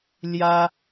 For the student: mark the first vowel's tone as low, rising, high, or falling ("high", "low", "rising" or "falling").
high